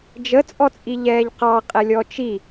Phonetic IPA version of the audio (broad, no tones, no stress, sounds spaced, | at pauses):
d͡ʒ ə t͡sʼ ɔ t͡sʼ i ʎ ɛː ʎ q ɑ qʼ ɛ lʲ ɔ t͡ʃ i